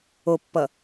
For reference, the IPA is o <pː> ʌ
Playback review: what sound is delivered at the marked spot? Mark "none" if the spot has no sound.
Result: pː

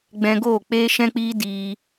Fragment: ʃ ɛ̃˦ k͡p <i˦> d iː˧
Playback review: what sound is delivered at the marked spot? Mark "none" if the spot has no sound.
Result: iː˦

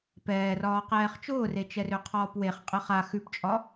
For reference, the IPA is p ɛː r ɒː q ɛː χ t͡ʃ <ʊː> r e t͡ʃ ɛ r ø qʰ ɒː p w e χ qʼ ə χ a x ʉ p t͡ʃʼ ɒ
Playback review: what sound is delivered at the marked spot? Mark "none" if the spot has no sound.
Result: ʊː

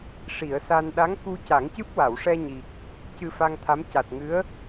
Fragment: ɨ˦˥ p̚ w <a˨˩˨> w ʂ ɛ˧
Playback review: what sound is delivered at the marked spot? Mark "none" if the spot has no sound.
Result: a˨˩˨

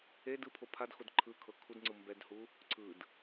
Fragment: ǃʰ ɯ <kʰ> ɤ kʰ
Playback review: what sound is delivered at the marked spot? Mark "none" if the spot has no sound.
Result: kʰ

